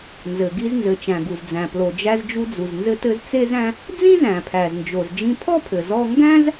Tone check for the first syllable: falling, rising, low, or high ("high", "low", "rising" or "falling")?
low